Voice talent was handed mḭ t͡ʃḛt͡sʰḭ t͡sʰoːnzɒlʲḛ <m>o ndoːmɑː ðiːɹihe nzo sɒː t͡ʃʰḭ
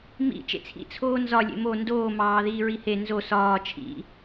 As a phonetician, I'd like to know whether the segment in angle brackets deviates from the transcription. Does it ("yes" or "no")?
no